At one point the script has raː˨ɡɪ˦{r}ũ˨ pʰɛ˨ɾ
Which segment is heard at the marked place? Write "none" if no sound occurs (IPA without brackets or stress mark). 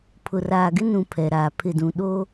n